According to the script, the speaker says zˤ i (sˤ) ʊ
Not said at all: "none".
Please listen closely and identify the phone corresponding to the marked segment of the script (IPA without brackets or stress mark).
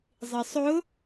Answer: sˤ